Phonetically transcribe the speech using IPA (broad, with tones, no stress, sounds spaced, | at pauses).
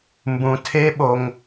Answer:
m b ũ˩ tʰ e˧˥ ɓ o˩ ŋ